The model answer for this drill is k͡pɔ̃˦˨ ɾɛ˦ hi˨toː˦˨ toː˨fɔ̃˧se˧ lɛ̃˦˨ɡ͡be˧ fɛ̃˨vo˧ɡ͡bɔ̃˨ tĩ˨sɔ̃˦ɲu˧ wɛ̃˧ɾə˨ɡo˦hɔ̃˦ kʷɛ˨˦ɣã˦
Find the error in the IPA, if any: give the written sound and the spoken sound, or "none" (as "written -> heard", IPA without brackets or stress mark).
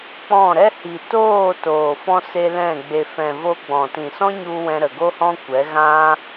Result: none